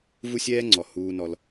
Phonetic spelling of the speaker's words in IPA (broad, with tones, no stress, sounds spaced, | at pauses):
v u˦ sʲ ɛː˦ ŋ͡ǀ ɔ˨ h uː˧ n ɔ˧ l